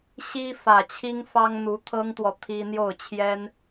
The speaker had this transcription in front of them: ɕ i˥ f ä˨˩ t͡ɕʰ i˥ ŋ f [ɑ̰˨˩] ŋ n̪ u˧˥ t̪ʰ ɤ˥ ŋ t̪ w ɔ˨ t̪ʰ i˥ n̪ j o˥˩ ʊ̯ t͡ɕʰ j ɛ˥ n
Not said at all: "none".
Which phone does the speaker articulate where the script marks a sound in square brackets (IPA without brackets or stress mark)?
ɑ˥